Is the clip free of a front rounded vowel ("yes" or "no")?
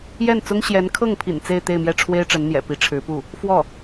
yes